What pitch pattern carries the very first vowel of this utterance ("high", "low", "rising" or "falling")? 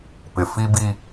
low